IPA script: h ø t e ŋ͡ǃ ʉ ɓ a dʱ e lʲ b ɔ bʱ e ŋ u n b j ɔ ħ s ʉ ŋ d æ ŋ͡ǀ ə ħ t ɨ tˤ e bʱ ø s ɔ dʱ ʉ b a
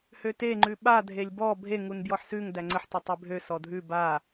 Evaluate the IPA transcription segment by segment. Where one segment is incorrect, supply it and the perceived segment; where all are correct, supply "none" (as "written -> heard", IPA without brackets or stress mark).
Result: ɨ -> ʉ